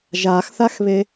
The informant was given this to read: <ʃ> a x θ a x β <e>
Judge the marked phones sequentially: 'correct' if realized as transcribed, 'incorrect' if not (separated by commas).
incorrect, correct